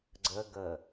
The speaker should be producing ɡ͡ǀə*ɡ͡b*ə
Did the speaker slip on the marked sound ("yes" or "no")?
yes